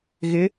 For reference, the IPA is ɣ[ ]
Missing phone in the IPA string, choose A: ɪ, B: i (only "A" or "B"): A